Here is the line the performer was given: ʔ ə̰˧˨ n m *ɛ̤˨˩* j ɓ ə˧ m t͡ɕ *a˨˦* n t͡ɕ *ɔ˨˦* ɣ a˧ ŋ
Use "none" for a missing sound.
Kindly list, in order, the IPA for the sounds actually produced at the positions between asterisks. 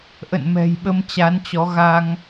ɛ̤˨˩, a˨˦, ɔ˨˦

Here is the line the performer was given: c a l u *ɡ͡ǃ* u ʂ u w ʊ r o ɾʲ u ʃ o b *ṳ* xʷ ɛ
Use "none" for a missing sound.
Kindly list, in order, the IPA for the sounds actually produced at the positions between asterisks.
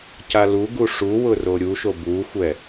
ɡ, u

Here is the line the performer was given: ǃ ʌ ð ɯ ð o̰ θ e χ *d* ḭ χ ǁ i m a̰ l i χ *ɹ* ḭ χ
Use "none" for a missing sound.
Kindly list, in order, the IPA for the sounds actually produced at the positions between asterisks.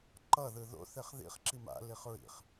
ð, ɹ

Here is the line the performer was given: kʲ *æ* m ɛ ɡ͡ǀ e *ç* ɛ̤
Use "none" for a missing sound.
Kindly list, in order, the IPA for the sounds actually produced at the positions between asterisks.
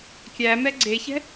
æ, ç

